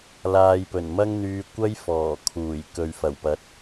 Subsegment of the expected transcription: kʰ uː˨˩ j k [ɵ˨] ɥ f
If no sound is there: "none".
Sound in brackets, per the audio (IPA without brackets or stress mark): ɵ˨